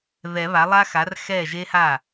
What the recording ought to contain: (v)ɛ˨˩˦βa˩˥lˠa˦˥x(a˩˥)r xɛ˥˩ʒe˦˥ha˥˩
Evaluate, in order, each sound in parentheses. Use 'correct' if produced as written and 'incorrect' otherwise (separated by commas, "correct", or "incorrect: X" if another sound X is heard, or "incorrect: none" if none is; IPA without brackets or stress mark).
incorrect: ð, correct